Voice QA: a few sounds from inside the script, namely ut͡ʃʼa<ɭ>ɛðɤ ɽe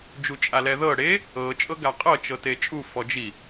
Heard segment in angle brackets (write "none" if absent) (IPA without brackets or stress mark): l